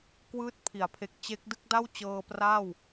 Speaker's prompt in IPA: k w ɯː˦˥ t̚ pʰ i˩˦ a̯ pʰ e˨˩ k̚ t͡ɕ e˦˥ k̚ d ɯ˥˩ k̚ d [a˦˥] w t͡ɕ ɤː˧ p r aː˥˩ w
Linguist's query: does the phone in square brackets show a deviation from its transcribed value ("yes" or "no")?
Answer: yes